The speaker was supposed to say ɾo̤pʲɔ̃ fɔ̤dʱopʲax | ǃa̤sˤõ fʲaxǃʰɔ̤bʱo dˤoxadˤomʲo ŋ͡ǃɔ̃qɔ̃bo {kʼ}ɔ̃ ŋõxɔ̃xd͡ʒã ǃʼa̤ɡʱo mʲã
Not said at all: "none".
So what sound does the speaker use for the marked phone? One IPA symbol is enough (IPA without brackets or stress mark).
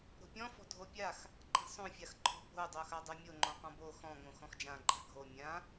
x